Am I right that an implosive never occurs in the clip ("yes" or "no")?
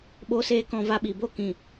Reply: no